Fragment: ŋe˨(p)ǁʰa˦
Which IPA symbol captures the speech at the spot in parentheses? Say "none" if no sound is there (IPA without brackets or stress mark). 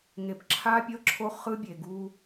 p